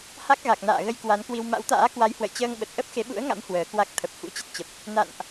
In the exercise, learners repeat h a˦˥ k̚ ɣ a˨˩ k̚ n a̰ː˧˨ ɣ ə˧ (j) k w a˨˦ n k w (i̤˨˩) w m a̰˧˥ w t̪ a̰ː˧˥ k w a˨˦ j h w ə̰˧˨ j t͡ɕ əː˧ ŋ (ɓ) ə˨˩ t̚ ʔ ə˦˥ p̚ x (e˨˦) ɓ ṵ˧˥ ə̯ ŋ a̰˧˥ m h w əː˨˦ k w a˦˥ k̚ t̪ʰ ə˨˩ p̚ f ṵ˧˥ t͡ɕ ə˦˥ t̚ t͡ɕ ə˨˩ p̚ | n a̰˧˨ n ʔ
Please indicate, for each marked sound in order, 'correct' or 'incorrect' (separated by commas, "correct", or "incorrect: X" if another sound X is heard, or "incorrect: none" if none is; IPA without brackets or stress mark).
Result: correct, incorrect: i˧, correct, correct